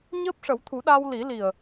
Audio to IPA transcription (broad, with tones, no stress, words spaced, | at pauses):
ɲəː˦˥p̚ʂə˨˩˦wt̪ʰu˨˩˦ ɗa˧wli˨˩˦li˨˩ə̯